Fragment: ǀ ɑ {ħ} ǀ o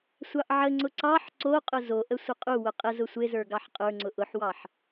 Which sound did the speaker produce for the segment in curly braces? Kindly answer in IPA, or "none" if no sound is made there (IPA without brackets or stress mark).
ħ